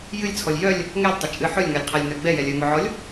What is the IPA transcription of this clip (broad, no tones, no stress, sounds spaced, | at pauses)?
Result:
j ɨ lʲ t͡sʰ ɔ lʲ j œ lʲ | ŋ ɛ lʲ tˤ ə t͡ʃʼ ɨ ħ ɵ lʲ ŋ a lʲ qʰ a lʲ n œ ɡ͡b ɛ j ɛ lʲ œ ŋ ɵ ʕ ɔ lʲ